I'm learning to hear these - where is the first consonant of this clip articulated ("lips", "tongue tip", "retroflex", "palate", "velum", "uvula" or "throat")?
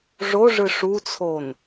retroflex